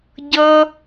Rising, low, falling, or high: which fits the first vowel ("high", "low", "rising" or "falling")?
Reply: high